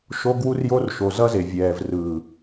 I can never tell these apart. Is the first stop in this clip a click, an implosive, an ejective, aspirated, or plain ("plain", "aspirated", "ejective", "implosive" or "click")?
plain